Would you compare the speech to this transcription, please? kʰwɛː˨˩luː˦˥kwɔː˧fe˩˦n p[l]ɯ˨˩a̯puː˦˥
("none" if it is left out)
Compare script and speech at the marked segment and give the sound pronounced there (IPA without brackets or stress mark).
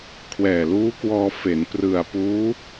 r